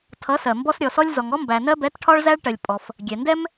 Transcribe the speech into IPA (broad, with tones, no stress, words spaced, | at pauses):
tʰʌ˩˥sɜ˩mbɔ˧s ɾʲɔ˩sɔ˧lʲ zɔ˩ŋɔ˥ mbæ˩ nɜ˧bɛ˩˥tʈʰɒ˧ɭ zæ˧ɭʈɜ˩lʲpʼɔ˩f | ɡʲɛ˩ndɛ˥m